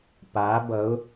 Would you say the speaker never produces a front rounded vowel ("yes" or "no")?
yes